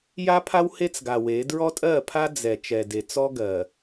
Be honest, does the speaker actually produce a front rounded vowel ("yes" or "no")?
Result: no